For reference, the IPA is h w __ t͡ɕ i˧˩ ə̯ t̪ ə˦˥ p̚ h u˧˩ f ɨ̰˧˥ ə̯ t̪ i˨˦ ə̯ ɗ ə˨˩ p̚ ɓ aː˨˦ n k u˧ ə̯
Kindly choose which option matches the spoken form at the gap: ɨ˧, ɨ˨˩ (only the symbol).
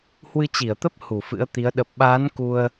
ɨ˧